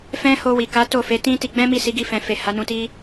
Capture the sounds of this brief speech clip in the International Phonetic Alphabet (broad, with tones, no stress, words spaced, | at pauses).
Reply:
fɛ̃˦ ho˧wi˨ka˨˦ to˦˨fe˨˦tĩ˦ ti˧ɡ͡bɛ̃˦mi˦˨ si˨˦ɡi˦˨fɛ̃˨fe˨ ha˨˦nũ˧ti˦